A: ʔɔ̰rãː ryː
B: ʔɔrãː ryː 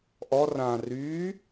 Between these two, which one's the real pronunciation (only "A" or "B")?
B